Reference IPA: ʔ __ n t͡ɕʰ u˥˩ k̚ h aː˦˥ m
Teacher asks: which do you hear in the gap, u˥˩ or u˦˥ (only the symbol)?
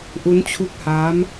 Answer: u˦˥